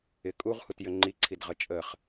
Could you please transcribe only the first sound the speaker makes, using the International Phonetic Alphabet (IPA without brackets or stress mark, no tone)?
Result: ɪ